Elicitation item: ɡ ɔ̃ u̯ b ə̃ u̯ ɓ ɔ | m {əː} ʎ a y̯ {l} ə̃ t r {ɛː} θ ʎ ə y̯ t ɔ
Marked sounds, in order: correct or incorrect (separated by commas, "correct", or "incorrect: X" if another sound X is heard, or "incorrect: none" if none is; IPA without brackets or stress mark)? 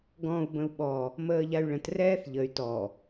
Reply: correct, incorrect: ɭ, correct